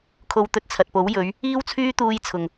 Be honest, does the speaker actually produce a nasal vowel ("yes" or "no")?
no